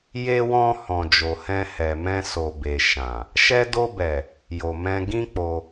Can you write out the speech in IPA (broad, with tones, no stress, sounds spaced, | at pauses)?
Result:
j e˧ w ɔ̃˧ h ɔ̃˨ d͡ʒ o˨ h ɛ̃˧ h ɛ˨ m ɛ̃˧ s o˨ b e˨ ʃ ã˨ | ʃ ɛ˧ d o˧ b ɛ˨ | j o˨ m ɛ̃˧ ɡ ĩ˦ k͡p o˧